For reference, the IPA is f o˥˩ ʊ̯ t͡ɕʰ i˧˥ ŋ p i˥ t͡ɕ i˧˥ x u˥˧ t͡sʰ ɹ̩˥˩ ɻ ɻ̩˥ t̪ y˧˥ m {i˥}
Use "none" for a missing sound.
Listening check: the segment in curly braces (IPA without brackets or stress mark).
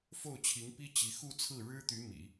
ḭ˨˩˦